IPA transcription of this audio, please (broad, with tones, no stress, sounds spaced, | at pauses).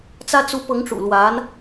t͡s ä˥ t͡s u˧˥ p ɤ˧˥ ŋ ʈ͡ʂ ṵ˨˩ l w a˧˥ n